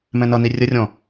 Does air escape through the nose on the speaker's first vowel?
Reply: yes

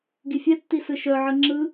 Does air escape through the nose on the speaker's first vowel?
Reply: no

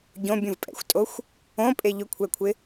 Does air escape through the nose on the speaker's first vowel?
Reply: yes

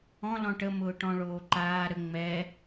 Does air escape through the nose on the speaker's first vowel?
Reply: yes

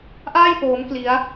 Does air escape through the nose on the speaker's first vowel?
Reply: no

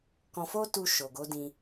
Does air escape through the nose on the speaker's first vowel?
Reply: yes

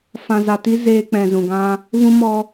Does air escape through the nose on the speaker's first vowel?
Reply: yes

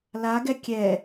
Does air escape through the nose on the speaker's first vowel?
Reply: no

